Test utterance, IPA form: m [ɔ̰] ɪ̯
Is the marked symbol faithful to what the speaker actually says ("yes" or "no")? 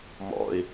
yes